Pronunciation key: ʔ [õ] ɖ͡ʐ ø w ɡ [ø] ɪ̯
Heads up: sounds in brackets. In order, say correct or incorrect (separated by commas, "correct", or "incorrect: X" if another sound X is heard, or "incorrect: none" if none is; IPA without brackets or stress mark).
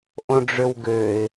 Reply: correct, correct